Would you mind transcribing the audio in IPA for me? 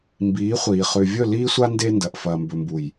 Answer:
mbiː˨˦χʷiː˨ χʉ˨vʲɵ˦˨liː˦sʷa˦ nde˦ndɐ˨ʔ fɐː˨mbɵ˨mbu˨j

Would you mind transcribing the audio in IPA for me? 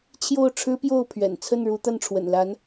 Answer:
t͡ɕʰjo˥˩ʊ̯ʈ͡ʂʰɻ̩˥pjo˥˩ʊ̯pʰɥɛ̰˨˩n t͡sʰə˥˩nɻu˧˥ t̪a˥˩nʈ͡ʂʰwə̰˨˩nla˧˥n

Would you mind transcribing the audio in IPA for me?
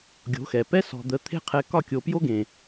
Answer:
ɡʲo̤˨˦xɛ˨ pɛ˦ sɔ̤˨d̪ə˨˦t̪ʰe̤˦ qʰɛ˦ kɒ˦˨kʲo˨pjo˦ɡẽ˨

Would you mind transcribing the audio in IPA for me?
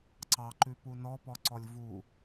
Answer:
ǀɑǃʉpu nɔpɔǀɔlʲ vu

